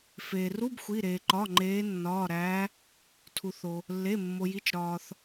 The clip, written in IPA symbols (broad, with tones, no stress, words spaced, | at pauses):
feː˩ru˧˥˧b xʷi˩˧˩ɾeː˩ǃɒ˩˧˩ ŋ͡ǃeː˨˦nːɒː˩˧˩ɾæː˨˦ | tʰu˩θo˩ | lːe˩˧˩mːo˩ji˩˧˩t͡ʃ ɾɒː˩θ